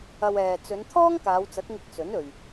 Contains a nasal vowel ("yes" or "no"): no